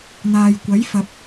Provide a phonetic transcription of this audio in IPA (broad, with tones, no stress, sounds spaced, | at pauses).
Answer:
n̪ aː˨ j kʷ ɐ˨˥ j f ɐ˨ p̚